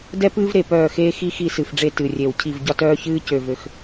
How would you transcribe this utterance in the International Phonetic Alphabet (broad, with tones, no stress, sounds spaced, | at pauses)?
d ɛ˥ p ɨː˥ v ɾ e˨˩ p œː˦˨ x eː˥ x i˥ x i˦˨ s ɨ˨˩ f ɖ͡ʐ e˦˨ t ɨ˨˩ rʲ e˨˩ w cʰ i˦˨ v ɟ ɒ˥ t œː˥ ç ɨː˥ c ø˨˩ v ø˨˩ x